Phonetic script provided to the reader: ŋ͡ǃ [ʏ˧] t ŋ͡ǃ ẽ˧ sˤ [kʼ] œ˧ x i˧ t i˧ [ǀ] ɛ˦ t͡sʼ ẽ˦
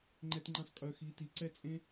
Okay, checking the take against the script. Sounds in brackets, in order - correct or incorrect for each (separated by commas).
incorrect, correct, correct